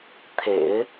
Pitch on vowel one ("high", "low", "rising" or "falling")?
low